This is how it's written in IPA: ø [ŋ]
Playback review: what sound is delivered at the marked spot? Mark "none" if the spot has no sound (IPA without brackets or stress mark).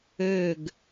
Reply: ɡ